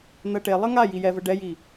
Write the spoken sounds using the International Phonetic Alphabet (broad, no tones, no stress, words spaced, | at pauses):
n̪ɜʈe lˠɜŋa jijɛvə ɖɛji